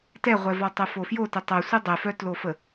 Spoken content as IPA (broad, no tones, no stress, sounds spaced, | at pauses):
t ɛ ʁʷ ɛ v ɔ tˤ ə f o f j o t ə tˤ œ sʷ ə dˤ ɛ f œ t l o f ə